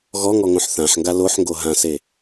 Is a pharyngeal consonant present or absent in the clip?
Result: present